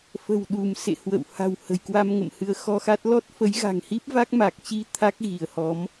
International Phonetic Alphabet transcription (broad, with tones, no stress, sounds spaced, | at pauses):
f ə̤˨˩ w ɗ u˧˩ m s ḛ˧˨ h w ə̰˧˨ w h a̤˨˩ w h ə̤˨˩ j k w a˧ m ŋ ə̰˧˨ m h ɨ˨˦ ə̯ x ɔ˧ x a˦˥ t̚ l ɔ˦˥ t̚ f ə˨˦ j ɣ a̤˨˩ ŋ h i˦˥ p̚ v a˦˥ k̚ m a˨˩ k̚ t͡ɕ i˧ t̪ʰ a˦˥ k̚ ɣ i˧˩ ə̯ h ɔ˨˦ m